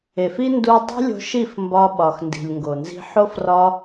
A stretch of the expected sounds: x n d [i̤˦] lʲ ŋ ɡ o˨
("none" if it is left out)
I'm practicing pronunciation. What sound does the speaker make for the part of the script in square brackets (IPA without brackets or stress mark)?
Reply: i̤˨